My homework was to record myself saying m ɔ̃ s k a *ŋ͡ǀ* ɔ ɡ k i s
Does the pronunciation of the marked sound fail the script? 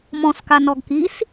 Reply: yes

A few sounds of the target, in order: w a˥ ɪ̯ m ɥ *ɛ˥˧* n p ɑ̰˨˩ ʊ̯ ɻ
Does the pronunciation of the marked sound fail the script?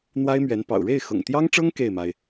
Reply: yes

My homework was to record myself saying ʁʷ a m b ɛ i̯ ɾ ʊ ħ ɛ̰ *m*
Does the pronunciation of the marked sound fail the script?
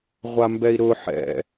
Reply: yes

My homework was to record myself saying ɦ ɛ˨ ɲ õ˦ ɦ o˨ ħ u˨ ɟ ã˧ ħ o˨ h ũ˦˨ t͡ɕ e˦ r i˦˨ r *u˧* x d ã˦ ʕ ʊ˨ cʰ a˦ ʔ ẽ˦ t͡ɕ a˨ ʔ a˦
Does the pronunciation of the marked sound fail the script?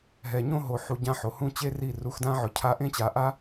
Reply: no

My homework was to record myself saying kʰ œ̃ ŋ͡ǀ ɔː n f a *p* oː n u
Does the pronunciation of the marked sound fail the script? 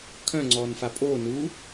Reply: yes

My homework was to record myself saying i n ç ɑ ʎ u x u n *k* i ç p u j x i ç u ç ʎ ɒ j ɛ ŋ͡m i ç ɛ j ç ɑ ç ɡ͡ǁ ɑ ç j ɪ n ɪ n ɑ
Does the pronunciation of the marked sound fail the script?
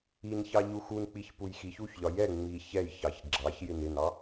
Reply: yes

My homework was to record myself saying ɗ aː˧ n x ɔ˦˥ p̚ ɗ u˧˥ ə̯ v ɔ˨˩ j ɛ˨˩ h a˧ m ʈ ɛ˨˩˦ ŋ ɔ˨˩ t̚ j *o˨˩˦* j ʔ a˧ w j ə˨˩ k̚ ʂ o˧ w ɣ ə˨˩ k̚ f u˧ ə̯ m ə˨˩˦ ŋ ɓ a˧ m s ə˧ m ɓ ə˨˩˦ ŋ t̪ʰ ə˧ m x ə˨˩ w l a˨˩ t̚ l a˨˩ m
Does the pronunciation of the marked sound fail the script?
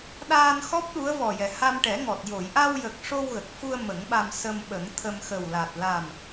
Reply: yes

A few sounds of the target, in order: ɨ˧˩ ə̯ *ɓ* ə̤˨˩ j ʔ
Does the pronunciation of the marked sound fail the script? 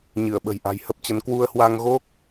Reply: no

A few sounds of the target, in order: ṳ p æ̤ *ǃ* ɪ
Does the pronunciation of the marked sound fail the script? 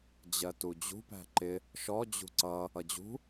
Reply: no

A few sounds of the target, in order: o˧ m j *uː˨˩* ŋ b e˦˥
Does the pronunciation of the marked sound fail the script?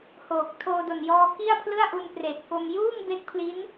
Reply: yes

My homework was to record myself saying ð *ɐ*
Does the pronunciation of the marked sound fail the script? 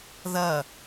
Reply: no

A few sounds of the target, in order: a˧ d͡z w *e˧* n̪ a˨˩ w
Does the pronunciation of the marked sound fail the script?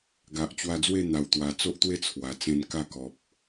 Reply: yes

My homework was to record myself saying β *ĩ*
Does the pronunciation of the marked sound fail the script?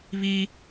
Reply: yes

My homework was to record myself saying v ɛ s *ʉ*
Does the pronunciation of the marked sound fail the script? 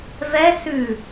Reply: no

